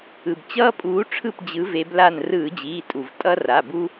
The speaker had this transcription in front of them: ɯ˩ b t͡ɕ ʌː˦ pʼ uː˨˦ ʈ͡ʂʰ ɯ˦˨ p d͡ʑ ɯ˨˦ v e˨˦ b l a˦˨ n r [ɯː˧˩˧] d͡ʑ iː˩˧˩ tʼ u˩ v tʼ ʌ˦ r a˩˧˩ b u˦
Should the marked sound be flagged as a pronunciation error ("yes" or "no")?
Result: no